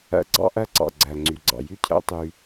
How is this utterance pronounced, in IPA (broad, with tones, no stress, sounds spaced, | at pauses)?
æ̰˧ ɡ͡ǀ ɑ̰˦ ʔ æ˦ ǀ ɑ̰˨ ɡ͡ǀ æ˨ ŋ͡ǀ y˨ ɡ͡ǀ ɑ̰˨ j y˦ cʰ æ̰˦ tˤ y˧